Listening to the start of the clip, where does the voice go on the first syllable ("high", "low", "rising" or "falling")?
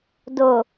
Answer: low